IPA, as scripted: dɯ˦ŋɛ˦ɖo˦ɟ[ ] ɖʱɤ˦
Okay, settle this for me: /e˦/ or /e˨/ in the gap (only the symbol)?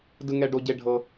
e˦